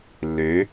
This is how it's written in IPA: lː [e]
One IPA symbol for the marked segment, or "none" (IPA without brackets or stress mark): ø